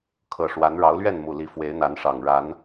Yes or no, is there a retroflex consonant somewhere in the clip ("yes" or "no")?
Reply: yes